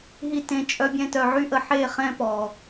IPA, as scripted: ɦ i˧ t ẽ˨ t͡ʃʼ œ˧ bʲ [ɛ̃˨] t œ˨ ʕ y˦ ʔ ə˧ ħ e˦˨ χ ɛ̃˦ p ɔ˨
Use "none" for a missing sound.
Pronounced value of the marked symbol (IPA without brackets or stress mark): ɛ̃˧